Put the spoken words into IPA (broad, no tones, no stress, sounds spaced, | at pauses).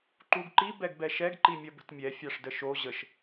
ǃ u ɡ ǃ i b ɛ ɡ b ɛ ʃ ɛ ɡ ǃ i mʲ ɐ b ə̤ t mʲ ɛ fʲ a ʂ d ə ʃ o ʑ ə ʃ